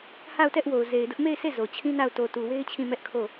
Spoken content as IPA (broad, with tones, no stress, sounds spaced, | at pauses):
h a˦˨ ʊ̯ t ɛ˦ ʔ w o˨ ʊ̯ z e˨ ɪ̯ d ʊ˦ ʔ m e˦˨ ɪ̯ sʰ e˦˨ z o˨ t͡ɕʰ ĩ˦ n a˦˨ ʊ̯ t o˨ t u˨ w e˦ ɪ̯ t͡ɕʰ ĩ˦˨ m ɛ˦ ʔ kʰ o˦˨